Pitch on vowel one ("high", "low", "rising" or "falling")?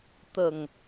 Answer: low